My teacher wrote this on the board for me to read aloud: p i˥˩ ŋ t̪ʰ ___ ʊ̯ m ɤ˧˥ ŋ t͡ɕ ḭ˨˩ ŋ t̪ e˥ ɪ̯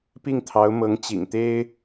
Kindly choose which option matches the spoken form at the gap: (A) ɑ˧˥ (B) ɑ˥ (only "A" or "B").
A